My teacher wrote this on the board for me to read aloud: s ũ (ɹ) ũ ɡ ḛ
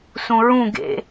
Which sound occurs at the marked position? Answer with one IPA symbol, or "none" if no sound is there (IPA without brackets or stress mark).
ɹ